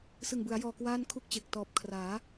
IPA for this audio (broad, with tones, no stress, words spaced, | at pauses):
sɯ˨˩ŋbɯ˩˦a̯jɔː˨˩ kwaː˥˩nkʰu˥˩k̚t͡ɕe˨˩k̚ tɔː˨˩p̚kʰraː˩˦